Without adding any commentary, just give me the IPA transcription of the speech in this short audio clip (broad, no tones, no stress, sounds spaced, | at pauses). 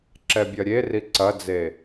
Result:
ǁ ɛ bʲ ɐ ɾʲ e r i ǀ ɐ d͡z e